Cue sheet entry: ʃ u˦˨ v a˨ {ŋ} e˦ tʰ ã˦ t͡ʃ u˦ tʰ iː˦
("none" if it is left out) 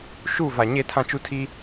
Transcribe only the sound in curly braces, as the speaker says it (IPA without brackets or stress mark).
ɲ